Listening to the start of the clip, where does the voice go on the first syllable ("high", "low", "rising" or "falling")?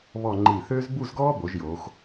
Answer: falling